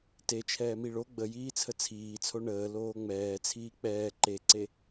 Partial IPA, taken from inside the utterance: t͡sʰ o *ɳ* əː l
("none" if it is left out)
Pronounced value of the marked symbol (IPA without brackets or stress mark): ɳ